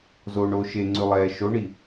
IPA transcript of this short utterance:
zoːɳoːʃeŋ͡ǀʉ lˠɛːʃoɳi

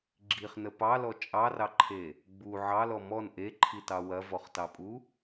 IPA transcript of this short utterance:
ɡ͡ǁiχnə pɑlɔ t͡ʃʼɑrɑǃʰe | ɡ͡bu ʕɑlɔ mɔn ʔeǃʰitɑ wɐvɔχtɑpʼu

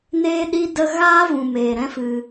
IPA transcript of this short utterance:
neː˦ɗi˦ də˧ɣaː˦vũ˨ meː˨ɾɛ̃˦ fɨ˧

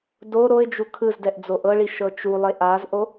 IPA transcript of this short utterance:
do ɾoɪ̯d͡ʒu kʰɯzdɛʔ d͡zoʔɤɭi ʃɤt͡ʃulˠe ʔazʔo

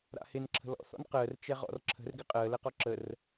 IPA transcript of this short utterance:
ɾa̰hɪn ǁʰə̤lɔ̰ θɔ̰nqəːr t͡ʃɛʁɔ̰rǁʰə̤r ɡɪqʼəː lɛqɔǁər

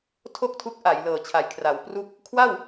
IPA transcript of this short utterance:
tʰo˥˩k̚tʰu˦˥k̚ ʔa˩˦jlɤː˨˩t͡ɕʰa˨˩j kʰra˩˦wpru˥˩k̚ | kʰwa˥˩w

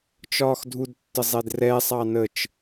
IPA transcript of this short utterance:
t͡ʃɒːxdʱud tːəzˤɛdrɛ sˤɑnət͡ʃ

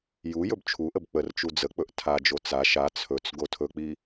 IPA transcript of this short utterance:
ju jɵbt͡ʃʰuʔəb k͡pərt͡ʃu d͡zək͡pɵʔ tʰad͡ʒo t͡sa ʃa t͡sʰɵt͡s ɡotʰɵk͡pi

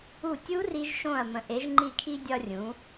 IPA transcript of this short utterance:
u˧˩tʲu˦˥ri˧ʒ ʃõ˧˩ɐ̯mə̃˩˧ ʔe˩˧ʒŋ͡ǃi˧˩kʰi˧ dʲɒ˧rʲũ˩˧

